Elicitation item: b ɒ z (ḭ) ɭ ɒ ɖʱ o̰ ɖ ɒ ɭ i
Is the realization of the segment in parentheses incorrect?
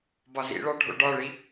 no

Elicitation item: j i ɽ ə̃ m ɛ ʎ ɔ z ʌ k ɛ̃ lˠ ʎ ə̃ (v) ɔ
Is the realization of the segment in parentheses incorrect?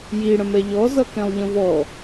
no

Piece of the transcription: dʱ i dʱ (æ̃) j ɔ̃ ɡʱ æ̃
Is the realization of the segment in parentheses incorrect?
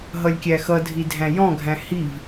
no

